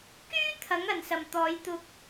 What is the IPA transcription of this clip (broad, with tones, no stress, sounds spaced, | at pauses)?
k yː˥ t̪ʰ ɐ˨˥ ŋ ɐ˨˩ n s ɐ˨˩ m t̪ ɔː˨˧ j t̪ ʊ˧ k̚